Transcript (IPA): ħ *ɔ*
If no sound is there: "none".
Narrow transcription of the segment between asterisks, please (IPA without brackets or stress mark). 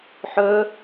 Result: ɵ